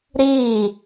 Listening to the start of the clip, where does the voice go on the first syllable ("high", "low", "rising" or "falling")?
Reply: falling